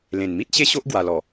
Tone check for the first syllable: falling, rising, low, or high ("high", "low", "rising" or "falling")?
low